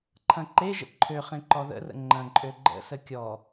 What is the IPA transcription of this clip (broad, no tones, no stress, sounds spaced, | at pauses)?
ǃʰ ɐ̃ ǃ e ʒ ə̰ ǃʰ ø χ ẽ ǃ ɔ ð ə̰ r ə̰ ŋ͡ǃ ɐ̃ ǃʼ ø ɡ͡ǃ ə̰ s ə kʲ ɔ